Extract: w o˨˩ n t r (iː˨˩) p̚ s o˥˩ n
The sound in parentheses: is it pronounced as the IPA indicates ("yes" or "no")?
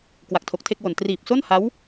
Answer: yes